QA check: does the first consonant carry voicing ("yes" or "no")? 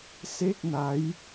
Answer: no